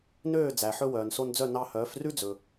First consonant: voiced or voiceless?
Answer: voiced